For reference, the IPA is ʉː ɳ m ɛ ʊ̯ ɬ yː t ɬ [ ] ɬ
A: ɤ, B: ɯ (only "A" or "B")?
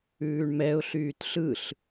B